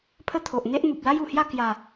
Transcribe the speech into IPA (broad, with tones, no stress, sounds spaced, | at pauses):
pʰ ə˦ t̪ʰ o˨ ʔ n̪ e˦ ʔ n̪ u˨ p̚ l a˦ j u˨˩ h j a˥˧ k j a˨˩